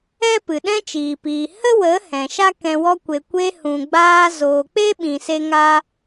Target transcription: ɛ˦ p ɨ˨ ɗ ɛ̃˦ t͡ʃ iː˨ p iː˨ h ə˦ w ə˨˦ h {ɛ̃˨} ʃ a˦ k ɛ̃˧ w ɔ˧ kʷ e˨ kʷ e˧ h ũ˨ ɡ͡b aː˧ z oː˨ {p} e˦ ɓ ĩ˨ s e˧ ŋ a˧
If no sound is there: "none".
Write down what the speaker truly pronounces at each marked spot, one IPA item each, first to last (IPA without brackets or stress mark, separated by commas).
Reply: ɛ̃˨, k͡p